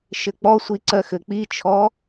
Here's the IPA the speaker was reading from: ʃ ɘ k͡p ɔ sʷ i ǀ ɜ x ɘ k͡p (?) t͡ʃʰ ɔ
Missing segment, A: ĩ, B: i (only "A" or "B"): B